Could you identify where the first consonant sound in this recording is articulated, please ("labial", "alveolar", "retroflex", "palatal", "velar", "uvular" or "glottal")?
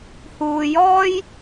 glottal